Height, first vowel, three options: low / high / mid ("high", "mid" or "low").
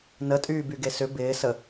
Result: mid